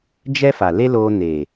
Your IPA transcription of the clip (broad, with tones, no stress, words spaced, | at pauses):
d͡ʒɛ˦fa˨le˦ loː˧ne˨